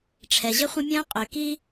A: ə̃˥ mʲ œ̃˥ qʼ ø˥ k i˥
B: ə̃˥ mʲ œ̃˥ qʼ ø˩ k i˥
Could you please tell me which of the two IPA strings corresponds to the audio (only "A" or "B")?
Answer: B